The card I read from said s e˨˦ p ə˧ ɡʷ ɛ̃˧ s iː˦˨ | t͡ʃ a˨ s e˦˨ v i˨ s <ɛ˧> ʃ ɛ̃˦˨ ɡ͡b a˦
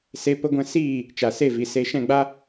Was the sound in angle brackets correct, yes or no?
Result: no